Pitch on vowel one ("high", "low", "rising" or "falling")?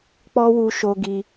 high